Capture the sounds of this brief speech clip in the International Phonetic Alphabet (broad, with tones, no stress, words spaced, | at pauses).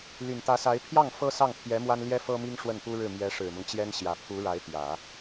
ly˨˩nt̪ä˧˥sa˧˥ɪ̯ pʰjɑ˥˩ŋ fɤ˥ sɑ˥˩ŋpʰjɛ˧˥ mwa˥nljɛ˥fɤ˥mi˥ŋ ʂwə˥˩npu˥ɻɻ̩˥˩ mjɛ˧˥ ʂɻ̩˨˩mʊ˦ŋt͡ɕjɛ˥nɕjä˨˩ pʰu˧˥ɻa˧˥ɪ̯t̪jä˨˩˦